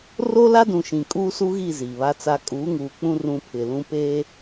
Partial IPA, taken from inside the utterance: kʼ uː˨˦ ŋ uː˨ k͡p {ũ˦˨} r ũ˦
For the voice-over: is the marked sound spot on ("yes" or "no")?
no